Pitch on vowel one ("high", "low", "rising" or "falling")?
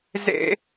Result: high